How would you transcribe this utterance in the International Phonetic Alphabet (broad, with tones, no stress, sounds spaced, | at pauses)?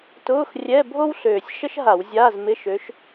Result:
t ʊː˧˥˧ x rʲ ɛ˧˥˧ bʱ o˥ w ɬ øː˨˩ sʲ ʃ ə˥ ʃ ɦ a˧˩˧ w zʲ aː˧˥˧ z m ɪ˧˥˧ ʃ ø˨˦ ʃ